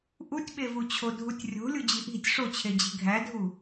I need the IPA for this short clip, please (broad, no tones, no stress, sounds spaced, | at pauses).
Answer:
ʔ u tʲ ɓ e v u t͡ɕʰ o dʱ u tʲ rʲ o̤ lʲ u d͡ʑ i ʔ i̤ tʲ ʂ o t͡ɕʰ e d͡ʑ i̤ ɡʱ æ dʱ u